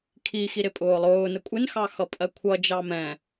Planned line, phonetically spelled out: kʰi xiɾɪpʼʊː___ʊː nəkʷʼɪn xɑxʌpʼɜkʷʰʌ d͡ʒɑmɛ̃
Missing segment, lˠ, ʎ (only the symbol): lˠ